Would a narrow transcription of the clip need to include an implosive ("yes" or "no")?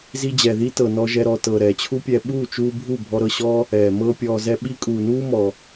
yes